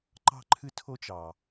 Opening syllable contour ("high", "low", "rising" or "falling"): falling